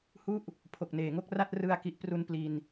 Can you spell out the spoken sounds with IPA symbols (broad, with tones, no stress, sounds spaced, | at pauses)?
h u˦˥ ʔ | pʰ o˨˩ k̚ n eː˨˩ ŋ o˦˥ k̚ r a˥˩ t̚ r ɯ˧ a̯ k i˨˩ ʔ p r u˧ n p l i˧ n